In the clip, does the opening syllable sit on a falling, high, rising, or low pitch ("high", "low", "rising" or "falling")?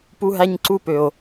high